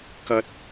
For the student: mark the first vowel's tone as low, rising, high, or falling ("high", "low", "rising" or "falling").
low